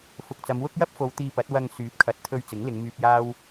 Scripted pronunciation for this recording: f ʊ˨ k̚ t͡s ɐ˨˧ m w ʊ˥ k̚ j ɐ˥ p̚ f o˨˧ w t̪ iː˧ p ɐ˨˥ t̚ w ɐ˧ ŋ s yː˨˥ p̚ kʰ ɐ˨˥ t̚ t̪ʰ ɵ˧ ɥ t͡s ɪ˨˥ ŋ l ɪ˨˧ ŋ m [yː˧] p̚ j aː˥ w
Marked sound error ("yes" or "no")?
no